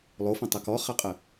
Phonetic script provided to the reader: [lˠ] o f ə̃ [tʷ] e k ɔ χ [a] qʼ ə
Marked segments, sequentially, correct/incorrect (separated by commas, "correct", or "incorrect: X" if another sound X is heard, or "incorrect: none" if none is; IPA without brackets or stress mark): correct, incorrect: tˤ, correct